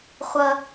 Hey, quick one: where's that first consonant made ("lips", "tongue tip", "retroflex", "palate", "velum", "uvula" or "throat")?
uvula